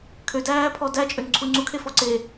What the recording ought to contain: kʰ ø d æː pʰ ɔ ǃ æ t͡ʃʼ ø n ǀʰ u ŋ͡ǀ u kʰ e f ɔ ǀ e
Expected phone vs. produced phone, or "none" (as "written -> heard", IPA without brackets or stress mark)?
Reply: ǃ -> d